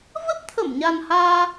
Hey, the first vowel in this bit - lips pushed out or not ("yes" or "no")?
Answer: no